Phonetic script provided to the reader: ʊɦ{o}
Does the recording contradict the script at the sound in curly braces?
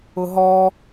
yes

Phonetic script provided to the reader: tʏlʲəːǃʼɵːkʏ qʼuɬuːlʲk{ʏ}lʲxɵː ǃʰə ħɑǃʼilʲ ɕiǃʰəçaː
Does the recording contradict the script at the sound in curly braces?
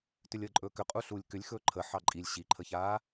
no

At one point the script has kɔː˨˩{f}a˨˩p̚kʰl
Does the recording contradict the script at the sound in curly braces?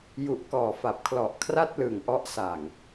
no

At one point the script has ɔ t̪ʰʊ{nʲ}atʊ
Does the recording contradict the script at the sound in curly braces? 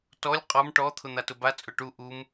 yes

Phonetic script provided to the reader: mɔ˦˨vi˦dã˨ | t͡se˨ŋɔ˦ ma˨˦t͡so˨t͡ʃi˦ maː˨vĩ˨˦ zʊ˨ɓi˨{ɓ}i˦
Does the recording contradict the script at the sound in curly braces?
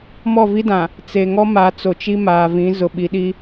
yes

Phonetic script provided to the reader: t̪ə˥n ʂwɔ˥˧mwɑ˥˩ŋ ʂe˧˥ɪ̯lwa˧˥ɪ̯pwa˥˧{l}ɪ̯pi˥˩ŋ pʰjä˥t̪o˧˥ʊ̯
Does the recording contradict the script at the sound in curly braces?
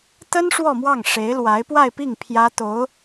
yes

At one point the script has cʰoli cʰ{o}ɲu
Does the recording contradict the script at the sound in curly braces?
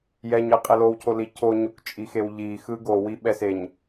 no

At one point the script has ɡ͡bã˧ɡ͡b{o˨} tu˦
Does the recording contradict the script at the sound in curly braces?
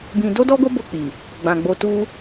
yes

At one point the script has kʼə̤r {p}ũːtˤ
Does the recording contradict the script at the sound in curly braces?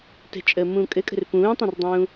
no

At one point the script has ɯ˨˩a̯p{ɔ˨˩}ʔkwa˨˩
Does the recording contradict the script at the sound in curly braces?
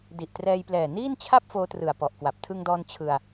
no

